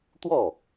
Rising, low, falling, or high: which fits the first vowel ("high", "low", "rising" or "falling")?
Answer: falling